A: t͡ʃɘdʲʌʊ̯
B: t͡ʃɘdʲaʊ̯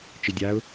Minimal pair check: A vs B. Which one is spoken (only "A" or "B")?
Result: B